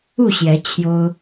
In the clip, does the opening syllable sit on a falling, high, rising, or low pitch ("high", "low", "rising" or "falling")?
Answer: falling